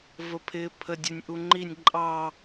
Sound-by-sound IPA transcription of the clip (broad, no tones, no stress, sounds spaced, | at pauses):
v ə pʰ ɪː pʰ ə dʲ ʊ nʲ ʔ u ŋ͡ǃ i nʲ ǃʼ ɑ